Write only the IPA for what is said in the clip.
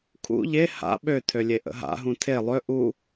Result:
kʰ ṵ ʎ e h a̰ ɓ ø tʰ ø lʲ e ʔ ə̰ ɦ a̰ ɦ ũ tʰ e lˠ ø ʔ u

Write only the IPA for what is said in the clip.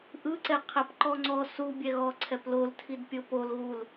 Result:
ʔ ɯ ǀ ɛ qʰ ɛ p ǃ ɔ ŋ͡ǀ ɔ s u bʲ ɛ ɣ ɔ ǀʰ ɛ p l o l tʰ i d pʲ ɤ p o l ɣ u l

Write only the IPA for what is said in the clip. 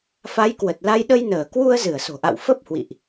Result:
f a˨˦ j k w ə˨˩ t̚ l a˧ j ɗ ə˧ j n əː˧˩ k w u˧ ə̯ z ɨ˧˩ ə̯ s o̤˨˩ ʔ a̰˧˨ w f ə˦˥ p̚ h w ḭ˧˨ ʔ

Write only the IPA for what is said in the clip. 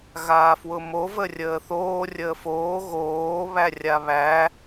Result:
ɣ aː f w ʊ m o v ə rʲ əː θ oː rʲ əː f oː ɣ oː β æ rʲ a β æ

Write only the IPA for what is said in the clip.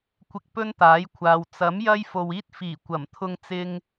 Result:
kʷ ɪ˧ k̚ p ɵ˥ n t̪ aː˨˥ j kʷʰ aː˨ w t͡s ɐ˨˥ m j ɐ˥ j f o˨ w iː˥ t̚ f iː˨˩ kʷ ɐ˨˩ m t̪ʰ ʊ˧ ŋ t͡s ɪ˧ ŋ

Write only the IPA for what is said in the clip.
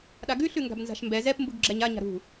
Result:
ɗ a ɡ ʉ ɬ ʉ ŋ ɡ a̤ b n z a̤ ʃ m b ɛ z ɛ p m b u ɡ ɡ͡ǁ ɛ ɲ a ɲ a̤ ɾ ṳ

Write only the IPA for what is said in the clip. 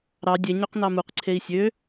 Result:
ɾ ɑ dʲ e ɲ ø q n ɑ m u q ǀʰ e i̯ sʲ ø

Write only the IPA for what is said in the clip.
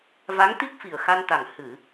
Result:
v a˧˥ ŋ t̪ i˦˥ k̚ f i˨˩ ə̯ x a˧ n t̪ a˨˩ ŋ h ɨ˨˩˨

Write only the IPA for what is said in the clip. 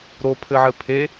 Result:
ɾ o pʰ ɘ ʕ ɘ pʰ e

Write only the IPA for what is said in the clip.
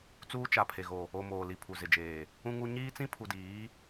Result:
t͡s uː˦ t͡ʃ a˨ pʰ e˨ ɣ o˨ | o˨ m oː˨ l i˨ pʰ u˨ z ɪ˨ d͡ʒ eː˨ | ũ˦ ŋ u˦ ɲ iː˦ t͡s ĩ˦ pʰ u˨ d iː˨˦

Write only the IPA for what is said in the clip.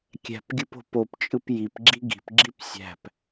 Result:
kʲ æ̤ p ɡʲ ɯ p o̤ p o p t͡ʃʼ ɯ p j i p ɡ͡ǁ i ɡ i̤ p ɡ͡ǁ i p sʲ æ̤ p

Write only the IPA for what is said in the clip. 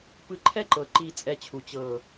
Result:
p ɯ˧ ǃʰ ɛ˦ ǃ ɤ˨ ǃ i˧ t͡sʼ ɛ˧ t͡ɕʰ u˨ t͡ɕ ɤ˦˨

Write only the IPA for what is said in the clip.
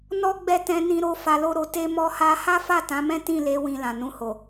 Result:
n ɔ˦ ɡ͡b ɛ˦˨ t ɛ̃˧ n ĩ˧ ɾ o˧ f a˧ l o˦ ɾ o˧ t e˦ m ɔ˦ h a˦ h a˦ f a˦˨ t ã˨˦ m ɛ̃˦ t ĩ˦˨ l e˨˦ w ĩ˧ l ã˨ n ũ˧ h o˨

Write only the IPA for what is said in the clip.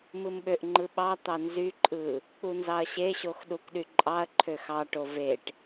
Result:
m ɯ m ɓ ø ʔ ŋ͡ǃ ɯ ɓ ɑ t̪ ɑ n z y ǃʼ ɯ | k͡p u n z ɑ ɐ̯ ɕ e ɕ o x ɗ u k ɗ y ǃʼ ɑ ɐ̯ ǃʰ ø x ɑ ʈ o v e ʈ

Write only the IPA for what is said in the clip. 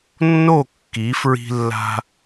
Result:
nː o˦˨ kː i˨˦ f ɹ i̤˧ lː a̤˧

